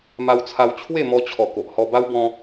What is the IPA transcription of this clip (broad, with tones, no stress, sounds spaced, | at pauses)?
m a˧ w t͡sʰ a˧ w t͡ɕʰ w e˥˧ m ɔ˧ t͡ɕʰ ɔ˨˩ k o˨ ʔ h ɔ˧ b a˦ w b ɔ̃˦